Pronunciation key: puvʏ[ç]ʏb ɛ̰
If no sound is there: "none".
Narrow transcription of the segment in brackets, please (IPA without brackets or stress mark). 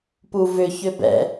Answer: ç